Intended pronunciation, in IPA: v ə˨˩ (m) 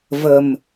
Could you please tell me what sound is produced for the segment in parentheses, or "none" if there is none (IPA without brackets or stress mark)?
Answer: m